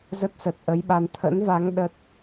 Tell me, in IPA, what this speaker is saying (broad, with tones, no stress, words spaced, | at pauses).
zə˦˥t̚sə˨˩t̚ ʔə˨˦jɓa˧n t̪ʰə̰˧˥nva˨˦ŋ ɗə˦˥t̚